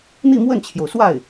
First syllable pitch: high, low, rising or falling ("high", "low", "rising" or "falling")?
falling